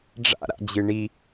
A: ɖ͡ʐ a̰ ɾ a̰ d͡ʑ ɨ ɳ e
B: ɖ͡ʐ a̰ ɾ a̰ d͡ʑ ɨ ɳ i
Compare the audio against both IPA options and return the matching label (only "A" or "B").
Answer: B